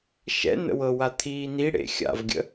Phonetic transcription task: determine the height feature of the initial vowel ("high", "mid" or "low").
mid